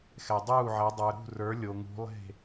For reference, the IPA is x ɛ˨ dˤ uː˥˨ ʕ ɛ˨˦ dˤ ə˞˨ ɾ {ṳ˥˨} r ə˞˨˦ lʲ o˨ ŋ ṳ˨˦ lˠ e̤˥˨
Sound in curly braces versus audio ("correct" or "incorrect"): correct